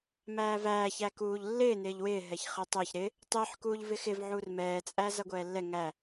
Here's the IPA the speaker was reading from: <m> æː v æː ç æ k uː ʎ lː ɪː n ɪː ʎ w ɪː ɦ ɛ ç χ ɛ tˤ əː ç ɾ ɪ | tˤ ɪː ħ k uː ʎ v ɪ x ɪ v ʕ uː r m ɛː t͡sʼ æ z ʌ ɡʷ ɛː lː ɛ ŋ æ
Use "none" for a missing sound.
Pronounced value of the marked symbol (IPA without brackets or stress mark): m